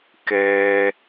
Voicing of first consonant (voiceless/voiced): voiceless